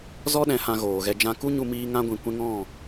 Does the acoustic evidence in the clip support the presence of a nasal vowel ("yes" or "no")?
yes